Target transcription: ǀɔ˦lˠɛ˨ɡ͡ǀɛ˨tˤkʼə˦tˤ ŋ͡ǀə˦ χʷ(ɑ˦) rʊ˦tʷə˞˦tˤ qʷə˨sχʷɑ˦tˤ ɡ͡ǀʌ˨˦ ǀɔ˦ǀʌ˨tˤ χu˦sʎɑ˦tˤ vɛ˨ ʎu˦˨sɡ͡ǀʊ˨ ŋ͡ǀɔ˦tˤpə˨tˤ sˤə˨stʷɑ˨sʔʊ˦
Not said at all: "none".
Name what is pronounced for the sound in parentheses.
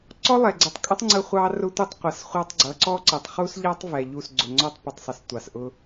ɑ˦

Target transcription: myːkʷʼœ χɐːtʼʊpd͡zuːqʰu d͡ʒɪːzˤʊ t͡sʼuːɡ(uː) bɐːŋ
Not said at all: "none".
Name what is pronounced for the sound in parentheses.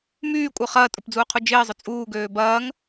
øː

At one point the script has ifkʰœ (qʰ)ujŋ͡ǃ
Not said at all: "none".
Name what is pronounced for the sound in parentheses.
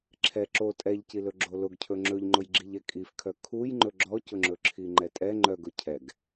kʰ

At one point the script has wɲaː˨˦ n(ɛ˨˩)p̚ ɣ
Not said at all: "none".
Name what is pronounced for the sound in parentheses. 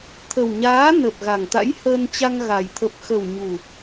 ə˨˩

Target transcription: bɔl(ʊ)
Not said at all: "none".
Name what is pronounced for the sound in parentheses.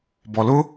ʊ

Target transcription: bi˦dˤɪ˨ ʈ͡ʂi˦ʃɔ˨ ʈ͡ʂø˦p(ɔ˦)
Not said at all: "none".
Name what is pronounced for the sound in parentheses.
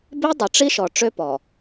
ɔ˨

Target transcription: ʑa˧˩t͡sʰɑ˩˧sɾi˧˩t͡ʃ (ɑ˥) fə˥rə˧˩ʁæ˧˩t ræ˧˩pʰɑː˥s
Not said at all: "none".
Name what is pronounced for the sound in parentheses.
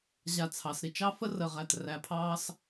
ɑ˥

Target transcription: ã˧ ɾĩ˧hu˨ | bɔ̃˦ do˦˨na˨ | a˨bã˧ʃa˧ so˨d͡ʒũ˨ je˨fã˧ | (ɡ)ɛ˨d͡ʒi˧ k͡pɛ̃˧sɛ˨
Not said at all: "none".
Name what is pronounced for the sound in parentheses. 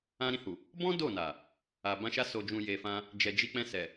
d͡ʒ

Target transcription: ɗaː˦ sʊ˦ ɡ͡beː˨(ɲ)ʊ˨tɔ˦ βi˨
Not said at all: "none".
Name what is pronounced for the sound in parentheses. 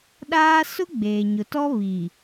ɲ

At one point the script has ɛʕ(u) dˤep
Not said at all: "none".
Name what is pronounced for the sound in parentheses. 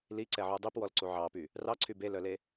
u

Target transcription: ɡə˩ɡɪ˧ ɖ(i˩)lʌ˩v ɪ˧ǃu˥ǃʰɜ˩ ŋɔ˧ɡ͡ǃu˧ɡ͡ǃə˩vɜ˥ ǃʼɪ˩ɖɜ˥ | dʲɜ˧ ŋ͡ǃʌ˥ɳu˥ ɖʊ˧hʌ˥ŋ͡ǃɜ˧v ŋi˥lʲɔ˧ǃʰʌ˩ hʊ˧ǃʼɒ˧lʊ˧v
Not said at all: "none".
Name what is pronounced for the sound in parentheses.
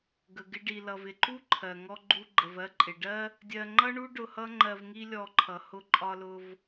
i˩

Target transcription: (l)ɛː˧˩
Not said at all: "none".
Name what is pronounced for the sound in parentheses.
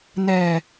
n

